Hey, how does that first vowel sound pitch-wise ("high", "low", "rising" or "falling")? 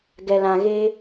low